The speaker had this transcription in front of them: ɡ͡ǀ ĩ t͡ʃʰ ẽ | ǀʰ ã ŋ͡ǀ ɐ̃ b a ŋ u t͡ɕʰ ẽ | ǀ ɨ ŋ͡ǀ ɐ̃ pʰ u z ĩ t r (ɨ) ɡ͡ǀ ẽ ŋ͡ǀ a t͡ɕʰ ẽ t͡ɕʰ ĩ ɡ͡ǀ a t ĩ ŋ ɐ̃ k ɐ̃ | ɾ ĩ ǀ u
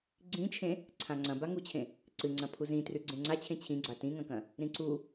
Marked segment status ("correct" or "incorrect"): incorrect